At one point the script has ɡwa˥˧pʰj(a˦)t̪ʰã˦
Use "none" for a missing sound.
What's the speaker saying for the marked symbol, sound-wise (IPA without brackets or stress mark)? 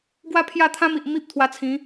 a˥˧